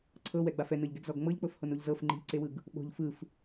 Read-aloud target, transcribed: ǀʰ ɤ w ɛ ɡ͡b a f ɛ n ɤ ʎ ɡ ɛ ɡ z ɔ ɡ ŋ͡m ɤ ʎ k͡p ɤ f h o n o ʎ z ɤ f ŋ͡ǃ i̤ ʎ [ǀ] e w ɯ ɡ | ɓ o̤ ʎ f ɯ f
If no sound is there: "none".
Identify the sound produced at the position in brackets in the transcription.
ǀ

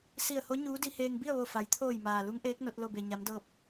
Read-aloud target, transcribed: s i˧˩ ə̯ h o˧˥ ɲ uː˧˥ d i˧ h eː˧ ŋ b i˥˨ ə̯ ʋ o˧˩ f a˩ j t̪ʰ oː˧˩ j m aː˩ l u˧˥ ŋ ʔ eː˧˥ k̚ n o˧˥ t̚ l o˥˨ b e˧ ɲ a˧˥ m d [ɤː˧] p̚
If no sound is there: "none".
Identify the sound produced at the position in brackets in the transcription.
ɤː˥˨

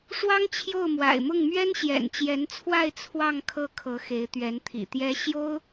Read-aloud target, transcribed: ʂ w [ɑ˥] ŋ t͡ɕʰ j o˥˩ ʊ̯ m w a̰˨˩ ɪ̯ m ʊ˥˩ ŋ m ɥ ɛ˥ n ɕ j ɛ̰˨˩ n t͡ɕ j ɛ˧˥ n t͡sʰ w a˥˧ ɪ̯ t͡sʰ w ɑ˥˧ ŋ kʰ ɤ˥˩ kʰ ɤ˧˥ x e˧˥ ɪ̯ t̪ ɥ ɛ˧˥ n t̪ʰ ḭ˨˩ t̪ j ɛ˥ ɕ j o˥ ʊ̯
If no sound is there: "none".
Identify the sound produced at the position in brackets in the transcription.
ɑ˥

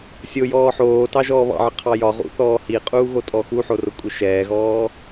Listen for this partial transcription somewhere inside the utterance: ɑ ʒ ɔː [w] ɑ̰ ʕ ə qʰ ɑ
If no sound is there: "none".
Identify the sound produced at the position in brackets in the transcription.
β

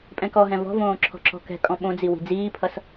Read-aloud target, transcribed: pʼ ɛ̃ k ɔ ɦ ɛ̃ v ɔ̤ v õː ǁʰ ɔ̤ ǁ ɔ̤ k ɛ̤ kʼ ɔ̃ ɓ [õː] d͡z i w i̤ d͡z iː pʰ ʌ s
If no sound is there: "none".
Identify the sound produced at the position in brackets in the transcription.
õ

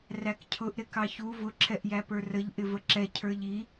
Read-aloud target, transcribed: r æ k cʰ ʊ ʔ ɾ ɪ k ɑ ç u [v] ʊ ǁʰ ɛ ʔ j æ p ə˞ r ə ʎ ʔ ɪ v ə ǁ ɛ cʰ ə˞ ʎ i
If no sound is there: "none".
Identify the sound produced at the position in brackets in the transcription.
v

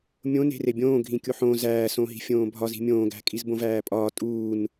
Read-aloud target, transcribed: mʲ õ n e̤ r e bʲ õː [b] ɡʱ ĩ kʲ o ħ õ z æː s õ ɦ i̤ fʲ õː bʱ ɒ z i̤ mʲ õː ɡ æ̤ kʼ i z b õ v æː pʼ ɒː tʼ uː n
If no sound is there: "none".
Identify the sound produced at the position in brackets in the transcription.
none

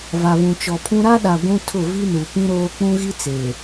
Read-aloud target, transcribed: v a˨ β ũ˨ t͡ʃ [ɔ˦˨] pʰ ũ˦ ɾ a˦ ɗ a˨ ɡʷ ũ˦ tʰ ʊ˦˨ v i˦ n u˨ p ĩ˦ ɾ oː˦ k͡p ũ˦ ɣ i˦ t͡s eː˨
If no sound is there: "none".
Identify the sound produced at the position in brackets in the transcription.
ɔ˨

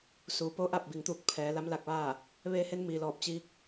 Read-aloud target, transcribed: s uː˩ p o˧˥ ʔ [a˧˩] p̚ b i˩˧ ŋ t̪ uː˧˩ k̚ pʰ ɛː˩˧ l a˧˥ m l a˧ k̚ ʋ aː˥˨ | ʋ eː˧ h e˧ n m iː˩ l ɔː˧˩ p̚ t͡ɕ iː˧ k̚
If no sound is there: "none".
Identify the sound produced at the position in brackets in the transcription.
a˧˩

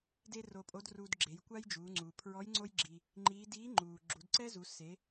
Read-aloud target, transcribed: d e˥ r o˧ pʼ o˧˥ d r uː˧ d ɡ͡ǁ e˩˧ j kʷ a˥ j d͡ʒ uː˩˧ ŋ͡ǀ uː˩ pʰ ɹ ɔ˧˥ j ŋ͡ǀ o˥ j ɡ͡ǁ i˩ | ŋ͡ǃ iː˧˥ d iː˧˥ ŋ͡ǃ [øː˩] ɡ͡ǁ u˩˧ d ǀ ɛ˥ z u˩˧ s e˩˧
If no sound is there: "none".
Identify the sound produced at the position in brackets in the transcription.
uː˩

